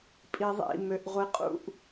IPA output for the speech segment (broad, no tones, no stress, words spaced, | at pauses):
pʼiðˤḭ møʔʁʷiqʼṵʔ